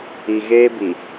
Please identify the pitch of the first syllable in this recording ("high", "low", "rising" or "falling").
low